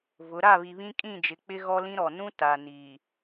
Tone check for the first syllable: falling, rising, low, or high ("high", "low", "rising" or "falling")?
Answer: rising